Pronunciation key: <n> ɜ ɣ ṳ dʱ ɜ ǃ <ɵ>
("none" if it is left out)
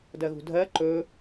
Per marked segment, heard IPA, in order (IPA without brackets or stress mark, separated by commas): d, ɵ